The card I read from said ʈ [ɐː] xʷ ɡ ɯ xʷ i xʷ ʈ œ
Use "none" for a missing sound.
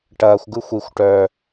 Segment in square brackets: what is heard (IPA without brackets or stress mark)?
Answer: ɐː